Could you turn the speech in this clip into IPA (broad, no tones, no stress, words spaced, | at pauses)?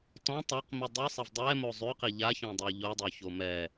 tɔ̃ tˤaq midˤʉsˤɛv dˤɛ mozˤʉqi ʎaçɔ̃dˤo ʎodˤoço mɛ